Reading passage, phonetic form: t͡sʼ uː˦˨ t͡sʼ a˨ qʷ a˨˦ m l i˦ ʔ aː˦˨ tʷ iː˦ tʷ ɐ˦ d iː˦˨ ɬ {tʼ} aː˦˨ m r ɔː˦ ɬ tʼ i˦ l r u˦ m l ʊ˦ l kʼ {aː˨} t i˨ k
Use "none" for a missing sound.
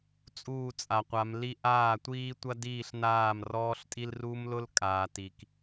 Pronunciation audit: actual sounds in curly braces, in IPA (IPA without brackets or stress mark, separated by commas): n, aː˨